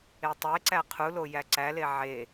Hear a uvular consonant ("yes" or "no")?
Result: yes